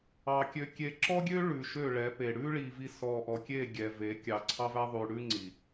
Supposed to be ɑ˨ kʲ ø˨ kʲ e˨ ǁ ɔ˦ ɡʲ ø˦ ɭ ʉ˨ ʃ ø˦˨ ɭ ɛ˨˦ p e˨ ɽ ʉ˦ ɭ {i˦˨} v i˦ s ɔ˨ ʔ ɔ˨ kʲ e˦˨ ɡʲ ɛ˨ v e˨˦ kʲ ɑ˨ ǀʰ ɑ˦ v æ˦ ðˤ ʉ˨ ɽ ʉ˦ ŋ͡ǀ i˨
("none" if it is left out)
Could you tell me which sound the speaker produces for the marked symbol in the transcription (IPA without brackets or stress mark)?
i˨